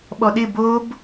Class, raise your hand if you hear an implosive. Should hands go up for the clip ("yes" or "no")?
yes